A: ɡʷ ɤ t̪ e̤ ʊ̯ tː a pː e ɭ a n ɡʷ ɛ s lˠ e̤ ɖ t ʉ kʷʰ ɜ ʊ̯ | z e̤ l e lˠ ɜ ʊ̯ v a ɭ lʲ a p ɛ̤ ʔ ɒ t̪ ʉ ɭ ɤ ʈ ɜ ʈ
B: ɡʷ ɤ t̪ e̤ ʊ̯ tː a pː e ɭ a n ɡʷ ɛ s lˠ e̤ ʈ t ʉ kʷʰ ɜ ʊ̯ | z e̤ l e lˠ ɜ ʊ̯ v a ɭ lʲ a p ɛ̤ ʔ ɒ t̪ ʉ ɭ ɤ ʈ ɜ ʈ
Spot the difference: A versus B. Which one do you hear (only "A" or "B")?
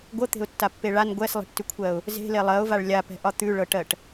B